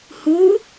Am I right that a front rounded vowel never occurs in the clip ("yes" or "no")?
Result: yes